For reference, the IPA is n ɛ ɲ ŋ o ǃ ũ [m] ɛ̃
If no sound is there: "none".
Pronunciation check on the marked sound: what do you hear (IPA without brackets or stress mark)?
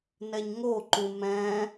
m